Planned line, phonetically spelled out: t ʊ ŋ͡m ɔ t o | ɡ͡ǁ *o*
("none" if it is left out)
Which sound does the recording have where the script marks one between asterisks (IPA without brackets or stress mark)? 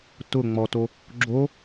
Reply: o